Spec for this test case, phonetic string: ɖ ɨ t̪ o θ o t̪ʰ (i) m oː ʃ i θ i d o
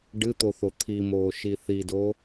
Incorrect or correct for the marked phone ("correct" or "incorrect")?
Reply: correct